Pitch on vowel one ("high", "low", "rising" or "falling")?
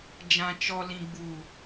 low